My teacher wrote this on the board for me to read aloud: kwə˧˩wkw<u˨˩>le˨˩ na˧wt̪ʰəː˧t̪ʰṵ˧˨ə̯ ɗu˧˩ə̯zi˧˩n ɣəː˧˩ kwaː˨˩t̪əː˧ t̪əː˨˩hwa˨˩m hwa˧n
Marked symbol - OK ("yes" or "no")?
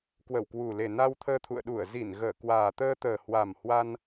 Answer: yes